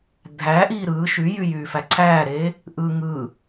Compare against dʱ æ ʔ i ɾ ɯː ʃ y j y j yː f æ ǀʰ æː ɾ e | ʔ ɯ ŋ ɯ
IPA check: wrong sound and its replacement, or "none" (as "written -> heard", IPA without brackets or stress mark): i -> iː